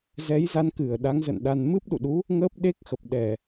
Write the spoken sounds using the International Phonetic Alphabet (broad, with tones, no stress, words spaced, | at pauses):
zɛ˨˦jza˨˦nkɨ˧˩ə̯ ɗa˨˦ŋzə̰˧˨nɗa˧n mɨ˦˥p̚ɗṵ˧˨ɗu˨˦ | ŋəː˦˥p̚ɗe˦˥k̚xə˨˩p̚ ɗɛ˧˩˨